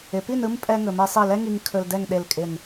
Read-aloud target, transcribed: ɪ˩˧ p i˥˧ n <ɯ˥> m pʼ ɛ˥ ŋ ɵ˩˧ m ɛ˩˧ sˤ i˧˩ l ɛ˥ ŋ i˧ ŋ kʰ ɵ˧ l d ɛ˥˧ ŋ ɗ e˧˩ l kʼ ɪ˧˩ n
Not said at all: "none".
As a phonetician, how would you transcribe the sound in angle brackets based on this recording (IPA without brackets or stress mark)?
ɯ˥